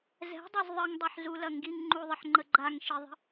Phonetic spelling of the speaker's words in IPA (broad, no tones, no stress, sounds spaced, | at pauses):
z ɛ̤ dˤ ɐ z ðˤ ə ŋ dˤ ɛ ħ z u l ɐ ŋ ɡ i ŋ ŋ͡ǃ u ðˤ ə ħ ŋ͡ǃ ə ɡ͡ǃ a ŋ ʃ i ðˤ ə̤